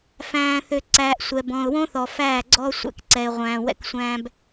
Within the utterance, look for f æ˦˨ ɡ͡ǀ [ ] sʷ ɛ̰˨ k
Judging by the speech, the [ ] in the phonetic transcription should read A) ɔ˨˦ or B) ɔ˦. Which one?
B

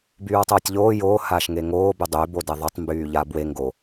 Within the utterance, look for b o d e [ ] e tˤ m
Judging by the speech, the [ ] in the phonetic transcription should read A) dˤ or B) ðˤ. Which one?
B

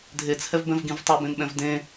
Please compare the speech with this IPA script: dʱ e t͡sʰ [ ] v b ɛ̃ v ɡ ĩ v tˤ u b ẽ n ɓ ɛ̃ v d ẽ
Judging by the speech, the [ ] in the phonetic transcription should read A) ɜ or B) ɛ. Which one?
B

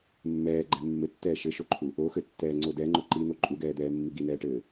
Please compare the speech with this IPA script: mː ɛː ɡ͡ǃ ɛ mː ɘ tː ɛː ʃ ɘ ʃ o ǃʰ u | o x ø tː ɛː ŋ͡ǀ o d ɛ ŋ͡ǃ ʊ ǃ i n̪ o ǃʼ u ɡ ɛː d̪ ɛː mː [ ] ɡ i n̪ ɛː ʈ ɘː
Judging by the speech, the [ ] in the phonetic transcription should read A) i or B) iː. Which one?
A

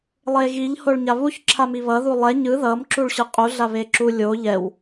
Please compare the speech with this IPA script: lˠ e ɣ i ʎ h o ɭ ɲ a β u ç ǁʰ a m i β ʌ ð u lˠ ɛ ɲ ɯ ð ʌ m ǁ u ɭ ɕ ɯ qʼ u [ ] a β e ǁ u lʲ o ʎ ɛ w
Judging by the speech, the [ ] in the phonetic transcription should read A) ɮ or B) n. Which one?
A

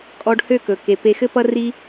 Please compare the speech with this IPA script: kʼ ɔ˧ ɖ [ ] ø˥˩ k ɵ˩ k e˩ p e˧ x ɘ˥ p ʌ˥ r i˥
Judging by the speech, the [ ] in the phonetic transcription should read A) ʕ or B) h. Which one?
B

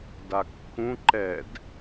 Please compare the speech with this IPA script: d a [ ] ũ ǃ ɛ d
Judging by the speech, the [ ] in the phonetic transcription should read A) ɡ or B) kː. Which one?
B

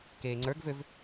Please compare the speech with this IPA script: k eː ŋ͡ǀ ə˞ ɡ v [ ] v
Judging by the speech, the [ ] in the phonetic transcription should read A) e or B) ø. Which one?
B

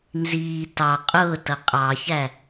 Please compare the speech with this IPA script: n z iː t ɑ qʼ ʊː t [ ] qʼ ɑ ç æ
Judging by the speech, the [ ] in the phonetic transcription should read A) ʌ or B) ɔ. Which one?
A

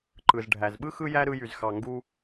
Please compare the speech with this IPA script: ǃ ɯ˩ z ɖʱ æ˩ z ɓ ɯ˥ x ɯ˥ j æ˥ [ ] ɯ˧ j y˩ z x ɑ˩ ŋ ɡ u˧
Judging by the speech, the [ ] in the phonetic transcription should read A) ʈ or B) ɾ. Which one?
B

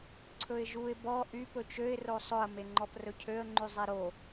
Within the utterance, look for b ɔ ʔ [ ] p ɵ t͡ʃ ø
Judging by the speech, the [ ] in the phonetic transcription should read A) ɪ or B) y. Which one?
B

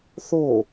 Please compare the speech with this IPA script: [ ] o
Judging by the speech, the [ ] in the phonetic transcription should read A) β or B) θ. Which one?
B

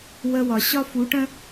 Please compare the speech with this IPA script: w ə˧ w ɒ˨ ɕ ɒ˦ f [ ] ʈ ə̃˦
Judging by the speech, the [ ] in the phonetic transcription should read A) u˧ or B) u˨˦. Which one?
B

